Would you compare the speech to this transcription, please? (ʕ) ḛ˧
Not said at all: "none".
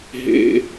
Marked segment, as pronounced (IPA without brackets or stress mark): ɦ